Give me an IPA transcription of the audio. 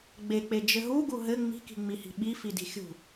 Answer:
ɡ͡b e k͡p e d͡ʒ ɘ ɦ u ɡ u ɦ ɘ ŋ͡m i̤ k i̤ ŋ͡m i h i̤ ɓ i f i d i̤ xʲ ṳ

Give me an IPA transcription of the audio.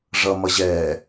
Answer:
ʐ ʌ m ʌ ʑ ɛː

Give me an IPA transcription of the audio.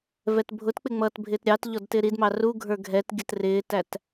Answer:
v ɛ t bʱ ʊ t k͡p ɪ ŋ͡m ʌː t bʱ ɪː t ɾʲ ɑ t ʎ ɔ d t ɪː ɾ i d m ɑ r u ɡʱ ə˞ ɡʱ ɛ t ɡʲ ə t r ɪː t æ t

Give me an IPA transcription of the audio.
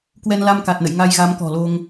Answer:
k w ɛ˧ n l a˧ m k a˨˩ t̚ n ə̰˧˨ j ŋ a˧ j ɣ a˨˦ m k ɔ̤˨˩ l o˧ ŋ

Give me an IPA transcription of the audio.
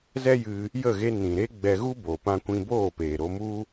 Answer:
z ɛ˦ j ɨ˧ | j ə˦˨ ɣ e˧ n ĩ˨ ɾ e˦ ɡ͡b ɛ˧ ɣ u˦ b o˨ p ã˧ kʷ ĩ˧ b oː˦˨ p eː˨ ɾ o˧ m u˦

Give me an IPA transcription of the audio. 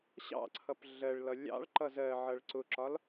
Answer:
ɕ ɑ̰ ǀʰ ʌ p ɮ ɜ ɭ l ʌ lʲ ɑ̰ ɭ ǃ ʌ z ɜ ʕ ʌ ɭ ǀ ʊ ǁ ɒ l

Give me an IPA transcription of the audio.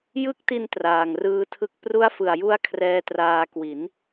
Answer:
j ɯ˦˥ k̚ t i˧ n t r aː˨˩ ŋ r ɯː˧ tʰ ɯ˦˥ k̚ p r u˦˥ a̯ f ɯ˨˩ a̯ j u˦˥ a̯ kʰ r ɛː˦˥ t r aː˧ k w i˩˦ n

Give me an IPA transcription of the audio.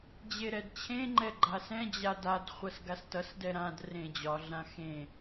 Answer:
d͡ʑ e ɾ ɛ d t͡ɕʰ ẽ ŋ͡ǃ ɛ ɡ͡ǃ a s ɛ̃ d͡ʑ a d a d χʷ ʌ s ɡ a s t ʌ s d ɛ ɾ ã d r ẽ d͡ʑ ɒ ɮ ã x ẽ

